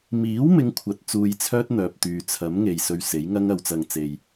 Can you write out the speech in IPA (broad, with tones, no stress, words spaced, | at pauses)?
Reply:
miː˨˥wmɪ˨˧ŋkʷʰɐ˨t̚ t͡suː˧jt͡sʰœː˥t̚n̪œː˨p̚t̪yː˨ t͡sʰɐ˨˥mŋe˨j sɵ˧ɥse˨˥jŋɐ˥ŋ ɐ˧wt͡sɐ˧ŋt͡se˧j